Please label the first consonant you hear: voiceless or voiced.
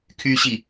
voiceless